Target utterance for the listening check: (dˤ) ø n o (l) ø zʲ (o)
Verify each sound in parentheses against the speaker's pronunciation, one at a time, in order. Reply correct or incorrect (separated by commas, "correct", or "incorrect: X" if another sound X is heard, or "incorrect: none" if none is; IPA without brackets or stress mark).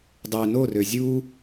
correct, incorrect: r, incorrect: u